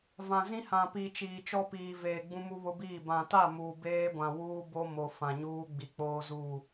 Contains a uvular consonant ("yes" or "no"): no